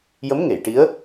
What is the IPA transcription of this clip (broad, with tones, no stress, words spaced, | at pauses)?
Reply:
jə˧˥mŋe˨˩˨jʈi˧˥ə̯